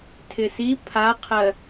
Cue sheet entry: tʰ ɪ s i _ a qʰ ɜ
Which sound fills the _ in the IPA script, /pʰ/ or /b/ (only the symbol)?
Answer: pʰ